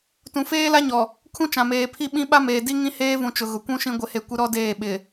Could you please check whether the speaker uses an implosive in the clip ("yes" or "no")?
yes